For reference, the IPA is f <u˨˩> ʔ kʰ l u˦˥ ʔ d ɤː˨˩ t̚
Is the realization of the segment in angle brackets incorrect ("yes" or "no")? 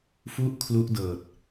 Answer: yes